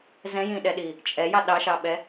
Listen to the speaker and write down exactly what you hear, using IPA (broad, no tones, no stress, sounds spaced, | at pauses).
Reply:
z ɛ̃ j ĩ ɗ ɛ ɗ i | t͡ʃʼ ɛ j ɑ ɗ ɑ ʃ ɑ ɓ ɛ